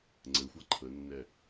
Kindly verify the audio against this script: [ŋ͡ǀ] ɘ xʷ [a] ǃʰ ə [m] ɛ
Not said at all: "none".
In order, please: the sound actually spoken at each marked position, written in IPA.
ŋ͡ǀ, a, nː

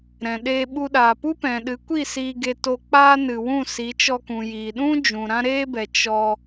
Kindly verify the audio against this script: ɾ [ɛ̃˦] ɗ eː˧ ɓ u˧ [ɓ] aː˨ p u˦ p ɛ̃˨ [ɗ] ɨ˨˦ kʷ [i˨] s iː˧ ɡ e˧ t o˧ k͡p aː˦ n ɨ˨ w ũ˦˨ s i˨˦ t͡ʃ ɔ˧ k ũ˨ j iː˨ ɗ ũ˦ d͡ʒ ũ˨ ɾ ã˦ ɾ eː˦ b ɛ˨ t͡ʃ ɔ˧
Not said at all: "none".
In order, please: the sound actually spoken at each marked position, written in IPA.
ɛ̃˨, ɗ, ɗ, i˦˨

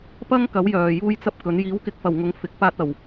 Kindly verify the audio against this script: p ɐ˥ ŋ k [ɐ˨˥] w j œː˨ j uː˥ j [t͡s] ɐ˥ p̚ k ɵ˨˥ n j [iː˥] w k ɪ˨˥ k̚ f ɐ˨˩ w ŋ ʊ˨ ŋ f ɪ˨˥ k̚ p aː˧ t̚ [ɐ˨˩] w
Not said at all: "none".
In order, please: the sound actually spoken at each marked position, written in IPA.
ɐ˨˥, t͡s, iː˨˥, ɐ˨˩

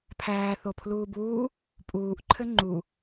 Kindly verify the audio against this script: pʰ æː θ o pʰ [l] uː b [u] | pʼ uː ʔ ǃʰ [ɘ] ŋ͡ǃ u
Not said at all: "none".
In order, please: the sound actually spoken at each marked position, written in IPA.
l, uː, ɘ

